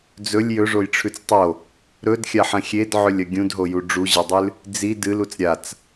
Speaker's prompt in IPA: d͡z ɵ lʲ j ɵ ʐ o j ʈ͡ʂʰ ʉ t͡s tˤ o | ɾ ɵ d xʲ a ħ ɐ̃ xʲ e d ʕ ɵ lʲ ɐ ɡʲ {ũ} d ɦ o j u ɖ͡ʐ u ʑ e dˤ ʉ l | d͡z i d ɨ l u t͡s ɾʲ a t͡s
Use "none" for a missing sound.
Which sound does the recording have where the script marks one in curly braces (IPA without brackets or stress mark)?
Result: ũ